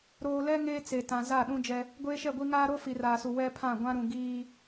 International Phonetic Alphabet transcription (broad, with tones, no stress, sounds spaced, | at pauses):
ɾ oː˨ l ɛ˦ ŋ eː˦ t͡s e˨ t ã˨ z a˦˨ ɗ ũ˦ d͡ʒ ɛ˦ | ɡʷ eː˦ ʃ ɛ˦˨ ɡʷ i˦ ŋ aː˦ ɾ o˦ f i˨ r aː˨ s u˨ w ɛ˦ pʰ ã˦˨ ɡʷ ã˦ ɾ ũ˨ ɡ iː˦